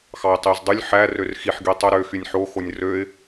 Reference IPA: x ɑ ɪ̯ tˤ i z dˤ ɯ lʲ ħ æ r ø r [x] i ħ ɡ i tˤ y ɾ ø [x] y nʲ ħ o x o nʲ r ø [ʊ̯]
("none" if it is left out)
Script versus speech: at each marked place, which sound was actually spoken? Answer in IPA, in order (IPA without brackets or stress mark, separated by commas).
x, x, ɪ̯